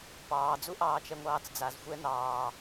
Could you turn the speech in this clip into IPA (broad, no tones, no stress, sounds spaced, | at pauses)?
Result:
p ɑː d͡z u ʔ ɑː t͡ʃ ɛ ŋʷ ɑː t͡s d͡z a z xʷ ɛ n ɑː